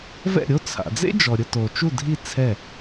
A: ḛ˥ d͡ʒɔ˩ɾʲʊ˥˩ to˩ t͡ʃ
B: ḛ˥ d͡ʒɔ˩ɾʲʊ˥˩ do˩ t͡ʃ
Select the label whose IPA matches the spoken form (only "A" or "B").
A